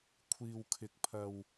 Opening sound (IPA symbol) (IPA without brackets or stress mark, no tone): kʷʰ